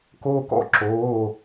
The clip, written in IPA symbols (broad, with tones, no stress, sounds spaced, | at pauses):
k oː˧ k ɔ̰˥˨ ǁ oː˩˧˩